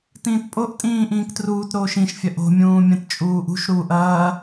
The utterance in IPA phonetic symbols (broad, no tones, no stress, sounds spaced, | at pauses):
t ĩː t pʼ o ʔ tʼ ĩː ʔ ĩː k t r uː t ɾ oː ʃ ĩ ʃ fʲ ɐ ʔ o̤ mʲ ũː mʲ ɐ̃ t t͡ʃʼ uː ʔ ṳ ʃ ɾ uː ʔ ɐː